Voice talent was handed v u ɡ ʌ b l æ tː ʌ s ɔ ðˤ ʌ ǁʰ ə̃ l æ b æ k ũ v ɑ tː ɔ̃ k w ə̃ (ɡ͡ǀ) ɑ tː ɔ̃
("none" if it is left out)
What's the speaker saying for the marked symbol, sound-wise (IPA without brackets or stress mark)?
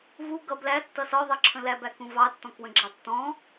ɡ͡ǁ